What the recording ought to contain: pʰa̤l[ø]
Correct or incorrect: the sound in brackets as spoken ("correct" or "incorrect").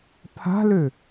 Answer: correct